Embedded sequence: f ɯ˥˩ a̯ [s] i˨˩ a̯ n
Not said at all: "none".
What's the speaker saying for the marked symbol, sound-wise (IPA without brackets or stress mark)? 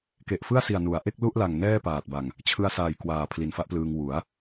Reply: s